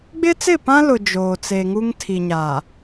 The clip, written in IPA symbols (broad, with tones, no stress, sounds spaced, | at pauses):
ɡ͡b ɪ˦ t͡s ɪ˦˨ p ã˦ l ʊ˨ d͡ʒ oː˨ t͡s eː˨ ŋ u˦ ŋ tʰ i˨ ɲ a˨